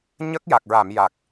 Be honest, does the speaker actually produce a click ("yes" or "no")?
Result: no